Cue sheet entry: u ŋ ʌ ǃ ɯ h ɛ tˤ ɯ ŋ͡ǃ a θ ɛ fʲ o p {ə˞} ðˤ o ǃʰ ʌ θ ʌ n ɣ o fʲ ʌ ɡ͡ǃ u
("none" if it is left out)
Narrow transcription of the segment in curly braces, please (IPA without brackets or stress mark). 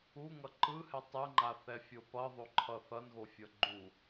ʌ